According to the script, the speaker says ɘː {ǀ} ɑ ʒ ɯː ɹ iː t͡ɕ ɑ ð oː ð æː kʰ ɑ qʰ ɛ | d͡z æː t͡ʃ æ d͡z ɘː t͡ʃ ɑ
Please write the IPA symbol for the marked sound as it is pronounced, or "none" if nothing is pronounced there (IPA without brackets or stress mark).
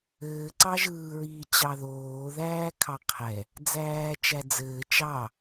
ǀ